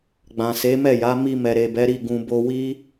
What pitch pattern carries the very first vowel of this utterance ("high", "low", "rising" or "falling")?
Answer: low